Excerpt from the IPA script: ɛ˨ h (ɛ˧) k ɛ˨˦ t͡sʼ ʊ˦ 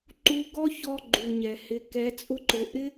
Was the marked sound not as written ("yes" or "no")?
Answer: yes